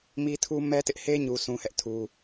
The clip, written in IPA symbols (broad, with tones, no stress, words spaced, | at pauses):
mi˦tʰu˦ mɛ˦tɪ˦ʔhe˦ ɲu˦sʰũ˦ hɛ˦ʔtʰu˦